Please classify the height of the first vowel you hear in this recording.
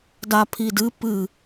low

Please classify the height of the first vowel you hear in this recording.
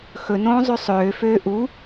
mid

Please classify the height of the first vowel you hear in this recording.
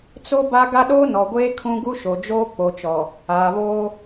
mid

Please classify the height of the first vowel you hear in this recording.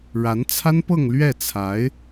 low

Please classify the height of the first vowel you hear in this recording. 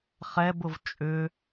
mid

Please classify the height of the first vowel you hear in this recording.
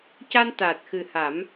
low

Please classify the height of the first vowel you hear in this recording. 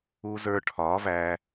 high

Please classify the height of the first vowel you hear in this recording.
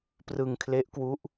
high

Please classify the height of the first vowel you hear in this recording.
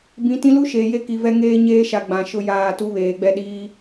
high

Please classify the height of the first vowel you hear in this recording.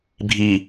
high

